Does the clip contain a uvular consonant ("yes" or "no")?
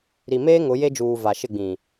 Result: no